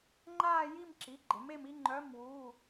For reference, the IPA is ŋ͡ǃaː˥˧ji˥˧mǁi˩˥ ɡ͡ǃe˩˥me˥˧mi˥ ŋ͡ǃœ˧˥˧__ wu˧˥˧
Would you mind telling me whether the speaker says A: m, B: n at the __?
A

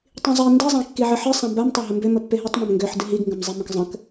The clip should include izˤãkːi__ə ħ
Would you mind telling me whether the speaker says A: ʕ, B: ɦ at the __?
A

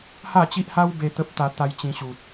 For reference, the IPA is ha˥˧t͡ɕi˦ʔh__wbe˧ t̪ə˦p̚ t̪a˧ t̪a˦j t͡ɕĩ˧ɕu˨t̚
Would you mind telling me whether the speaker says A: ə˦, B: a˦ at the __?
B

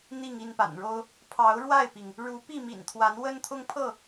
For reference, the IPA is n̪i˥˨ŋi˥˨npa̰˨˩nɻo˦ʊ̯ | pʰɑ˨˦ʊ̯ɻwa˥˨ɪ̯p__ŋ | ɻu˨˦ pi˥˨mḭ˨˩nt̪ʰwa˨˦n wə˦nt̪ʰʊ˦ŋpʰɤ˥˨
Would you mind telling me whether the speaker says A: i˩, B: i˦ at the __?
A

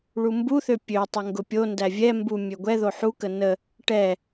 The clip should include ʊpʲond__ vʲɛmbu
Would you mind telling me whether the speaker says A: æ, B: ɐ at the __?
A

